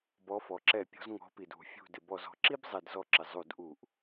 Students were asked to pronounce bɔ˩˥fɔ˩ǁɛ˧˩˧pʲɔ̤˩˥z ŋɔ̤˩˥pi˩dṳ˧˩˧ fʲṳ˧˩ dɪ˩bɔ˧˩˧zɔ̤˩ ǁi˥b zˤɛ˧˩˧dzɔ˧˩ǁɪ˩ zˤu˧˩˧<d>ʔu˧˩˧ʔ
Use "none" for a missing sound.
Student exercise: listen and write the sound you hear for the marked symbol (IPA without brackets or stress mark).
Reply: d